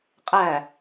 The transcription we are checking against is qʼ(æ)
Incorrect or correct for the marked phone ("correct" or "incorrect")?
correct